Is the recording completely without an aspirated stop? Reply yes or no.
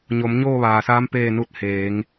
yes